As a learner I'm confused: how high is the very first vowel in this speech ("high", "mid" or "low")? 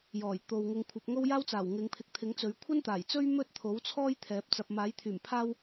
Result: mid